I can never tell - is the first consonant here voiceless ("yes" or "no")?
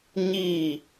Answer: no